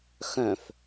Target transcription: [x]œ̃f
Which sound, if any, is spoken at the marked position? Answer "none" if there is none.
x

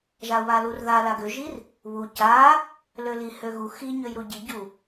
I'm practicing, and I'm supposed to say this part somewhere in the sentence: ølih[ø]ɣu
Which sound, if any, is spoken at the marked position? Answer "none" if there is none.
ø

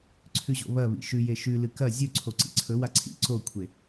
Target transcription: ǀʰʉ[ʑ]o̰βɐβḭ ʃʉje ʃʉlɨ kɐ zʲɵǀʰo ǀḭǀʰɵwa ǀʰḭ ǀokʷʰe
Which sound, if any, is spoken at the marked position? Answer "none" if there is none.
ʑ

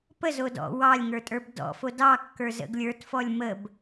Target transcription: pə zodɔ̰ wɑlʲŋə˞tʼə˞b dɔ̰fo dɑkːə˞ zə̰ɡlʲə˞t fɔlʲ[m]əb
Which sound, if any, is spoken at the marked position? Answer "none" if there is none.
m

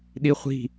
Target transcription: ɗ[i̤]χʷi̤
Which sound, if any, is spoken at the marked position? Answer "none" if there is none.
i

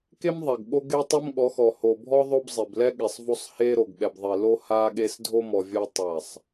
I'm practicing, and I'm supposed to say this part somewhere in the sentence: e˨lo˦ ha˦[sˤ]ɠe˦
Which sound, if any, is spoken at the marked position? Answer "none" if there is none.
none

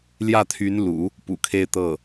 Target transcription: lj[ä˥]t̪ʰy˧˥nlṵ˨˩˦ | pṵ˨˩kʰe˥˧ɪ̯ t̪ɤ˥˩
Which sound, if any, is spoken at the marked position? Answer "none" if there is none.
ä˥˩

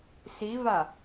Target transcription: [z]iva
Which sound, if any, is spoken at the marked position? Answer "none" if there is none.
s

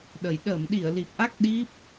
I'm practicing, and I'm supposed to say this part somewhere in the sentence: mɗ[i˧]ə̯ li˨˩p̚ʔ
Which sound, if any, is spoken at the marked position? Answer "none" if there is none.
i˧˩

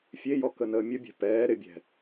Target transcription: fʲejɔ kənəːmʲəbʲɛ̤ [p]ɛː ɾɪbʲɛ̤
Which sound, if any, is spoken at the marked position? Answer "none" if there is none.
p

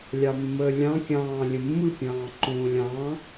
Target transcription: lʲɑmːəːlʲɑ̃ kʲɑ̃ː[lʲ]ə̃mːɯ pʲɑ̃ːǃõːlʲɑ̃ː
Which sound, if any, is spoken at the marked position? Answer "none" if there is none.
lʲ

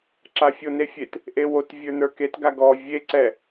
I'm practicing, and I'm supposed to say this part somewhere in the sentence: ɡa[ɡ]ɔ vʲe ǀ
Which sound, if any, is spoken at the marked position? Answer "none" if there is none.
ɡ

